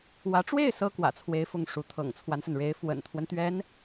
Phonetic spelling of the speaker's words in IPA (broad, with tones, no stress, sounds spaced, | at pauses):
w ä˧˥ ʈ͡ʂ w e˥˩ ɪ̯ s ɤ˥ k w ä̰˨˩ t͡sʰ w e˧˥ ɪ̯ f ʊ˥˩ ŋ ʂ u˧˥ t̪ʰ ɤ̰˨˩ ŋ t͡sʰ w a˦ n s ə˩ n ɻ e˧˥ ɪ̯ f w ə̰˨˩ n t̪ʰ w ə˦ n t̪ ɥ ɛ˧˥ n